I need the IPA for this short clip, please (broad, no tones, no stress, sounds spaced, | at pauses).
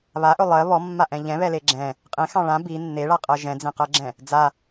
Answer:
β a ʔ ɵ lˠ ɜ β ɔ mː a ʔ ɛ̃ ʎ ɛ̃ β ɛ l e ɡ͡ǁ ɛ̃ | qʼ ẽ x ɑ̃ ɭ ã b i nː e ɭ a qʼ ɜ ʒ ɛ̃ d͡z ẽ q ɜ ɡ͡ǁ ɛ̃ | d͡z a